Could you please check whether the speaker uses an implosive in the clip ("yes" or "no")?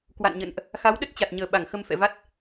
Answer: yes